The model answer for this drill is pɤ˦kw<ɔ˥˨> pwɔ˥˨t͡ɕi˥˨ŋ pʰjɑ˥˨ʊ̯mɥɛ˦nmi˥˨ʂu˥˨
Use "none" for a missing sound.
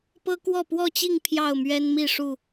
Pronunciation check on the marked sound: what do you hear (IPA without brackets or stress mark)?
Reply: ɔ˥˨